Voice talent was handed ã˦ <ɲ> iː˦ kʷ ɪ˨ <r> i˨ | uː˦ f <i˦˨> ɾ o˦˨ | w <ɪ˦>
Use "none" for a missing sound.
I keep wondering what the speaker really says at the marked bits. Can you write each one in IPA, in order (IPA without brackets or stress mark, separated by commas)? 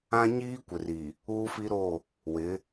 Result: ɲ, r, i˦, ɪ˨˦